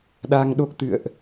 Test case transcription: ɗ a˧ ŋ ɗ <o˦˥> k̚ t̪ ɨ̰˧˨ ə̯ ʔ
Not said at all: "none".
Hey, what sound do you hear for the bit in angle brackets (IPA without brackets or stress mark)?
o˦˥